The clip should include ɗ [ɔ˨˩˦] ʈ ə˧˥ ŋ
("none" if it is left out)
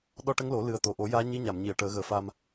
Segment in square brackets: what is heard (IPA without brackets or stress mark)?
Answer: ɔ˧